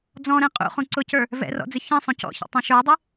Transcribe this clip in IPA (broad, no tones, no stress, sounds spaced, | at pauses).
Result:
d͡z ɔ̃ ɾ ɛ̃ qʼ ṵ χ ũ ǀ ʊ c ə˞ | v ɛ̰ r ɔ̰ d͡z ɪ ç ɛ̃ sˤ ũ c ɔ̰ ç ɔ̰ tˤ ɛ̃ ʃ ə˞ dˤ ɪ